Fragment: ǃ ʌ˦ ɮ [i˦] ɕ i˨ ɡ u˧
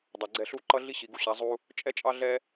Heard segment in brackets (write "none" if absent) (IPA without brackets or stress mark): i˦